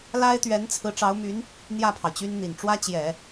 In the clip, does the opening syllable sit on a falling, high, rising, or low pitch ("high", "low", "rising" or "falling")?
high